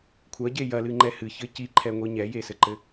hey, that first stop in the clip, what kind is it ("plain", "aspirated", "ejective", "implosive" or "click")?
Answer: aspirated